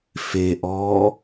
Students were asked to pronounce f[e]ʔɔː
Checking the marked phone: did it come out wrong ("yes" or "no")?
no